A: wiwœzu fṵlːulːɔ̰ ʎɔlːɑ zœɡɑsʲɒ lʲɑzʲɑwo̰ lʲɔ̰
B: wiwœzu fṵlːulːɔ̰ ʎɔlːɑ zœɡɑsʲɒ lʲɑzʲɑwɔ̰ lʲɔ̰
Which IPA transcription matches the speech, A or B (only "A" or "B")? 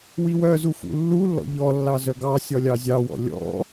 B